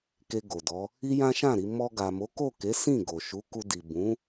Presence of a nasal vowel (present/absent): present